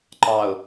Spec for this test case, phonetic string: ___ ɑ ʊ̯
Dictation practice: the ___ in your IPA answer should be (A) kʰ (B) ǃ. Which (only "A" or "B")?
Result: B